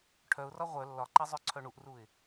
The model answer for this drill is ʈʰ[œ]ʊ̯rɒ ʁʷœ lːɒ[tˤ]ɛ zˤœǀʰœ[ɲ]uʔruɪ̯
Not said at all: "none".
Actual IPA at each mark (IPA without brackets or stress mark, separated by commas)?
œ, ǃ, ɳ